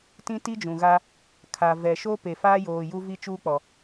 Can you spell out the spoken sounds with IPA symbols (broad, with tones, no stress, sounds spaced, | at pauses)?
t ĩ˦ t i˦ d͡ʒ ũ˨ ɣ a˦ | kʰ a˨ v ɛ˨ ʃ o˦ p e˨ f aː˦ j oː˨ j u˦ v i˦ t͡ʃ uː˦ k͡p ɔ˨